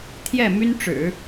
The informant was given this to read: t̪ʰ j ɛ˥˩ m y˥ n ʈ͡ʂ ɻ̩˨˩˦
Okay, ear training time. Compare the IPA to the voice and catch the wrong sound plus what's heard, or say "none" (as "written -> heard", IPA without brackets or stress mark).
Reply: none